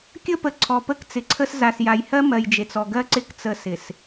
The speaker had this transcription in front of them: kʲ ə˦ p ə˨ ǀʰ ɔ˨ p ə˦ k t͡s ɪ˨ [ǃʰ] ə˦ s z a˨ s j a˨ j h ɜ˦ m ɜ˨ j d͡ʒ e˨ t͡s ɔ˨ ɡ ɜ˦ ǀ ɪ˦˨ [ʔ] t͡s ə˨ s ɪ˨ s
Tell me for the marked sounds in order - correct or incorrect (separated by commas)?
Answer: incorrect, incorrect